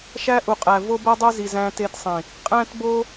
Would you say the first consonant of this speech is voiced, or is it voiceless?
voiceless